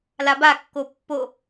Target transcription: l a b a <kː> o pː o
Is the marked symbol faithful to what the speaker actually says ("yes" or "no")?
yes